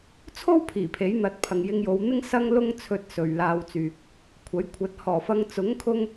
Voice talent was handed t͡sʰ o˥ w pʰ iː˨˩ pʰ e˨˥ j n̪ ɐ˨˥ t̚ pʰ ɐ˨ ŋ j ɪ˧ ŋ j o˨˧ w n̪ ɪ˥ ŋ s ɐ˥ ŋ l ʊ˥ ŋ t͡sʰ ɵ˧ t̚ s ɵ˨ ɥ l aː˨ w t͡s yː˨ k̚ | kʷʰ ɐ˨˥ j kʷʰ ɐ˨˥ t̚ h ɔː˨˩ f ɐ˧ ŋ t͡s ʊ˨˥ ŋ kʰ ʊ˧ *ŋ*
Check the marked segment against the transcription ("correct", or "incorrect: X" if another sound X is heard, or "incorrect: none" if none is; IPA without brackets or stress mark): correct